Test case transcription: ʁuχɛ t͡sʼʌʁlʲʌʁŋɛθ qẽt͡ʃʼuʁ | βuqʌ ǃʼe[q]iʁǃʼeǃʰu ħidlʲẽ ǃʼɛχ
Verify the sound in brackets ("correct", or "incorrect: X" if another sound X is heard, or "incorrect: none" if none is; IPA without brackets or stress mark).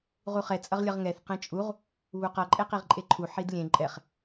correct